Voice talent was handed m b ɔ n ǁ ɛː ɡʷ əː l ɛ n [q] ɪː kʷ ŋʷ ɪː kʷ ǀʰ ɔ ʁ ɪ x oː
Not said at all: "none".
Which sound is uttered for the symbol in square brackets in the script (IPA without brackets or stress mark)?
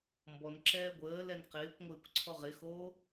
q